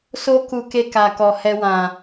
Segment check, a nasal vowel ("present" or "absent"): present